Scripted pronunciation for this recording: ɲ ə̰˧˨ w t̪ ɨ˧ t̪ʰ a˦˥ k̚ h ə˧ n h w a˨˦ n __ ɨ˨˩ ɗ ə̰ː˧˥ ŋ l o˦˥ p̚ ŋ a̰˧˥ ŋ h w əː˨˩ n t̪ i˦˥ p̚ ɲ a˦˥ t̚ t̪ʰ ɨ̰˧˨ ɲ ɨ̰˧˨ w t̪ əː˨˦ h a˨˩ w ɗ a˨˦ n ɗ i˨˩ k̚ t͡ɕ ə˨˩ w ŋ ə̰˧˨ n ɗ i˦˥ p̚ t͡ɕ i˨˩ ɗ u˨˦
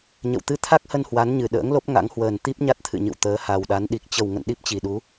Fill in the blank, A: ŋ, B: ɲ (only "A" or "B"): B